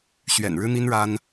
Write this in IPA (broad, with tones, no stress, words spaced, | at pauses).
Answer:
ɕɥɛ̰˨˩nɻɻ̩˥n̪i˥nɻa˥n